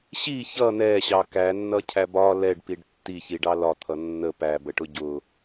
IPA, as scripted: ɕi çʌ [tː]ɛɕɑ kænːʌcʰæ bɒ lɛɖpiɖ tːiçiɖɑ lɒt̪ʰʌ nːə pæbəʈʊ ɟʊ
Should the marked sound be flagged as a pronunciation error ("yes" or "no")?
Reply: yes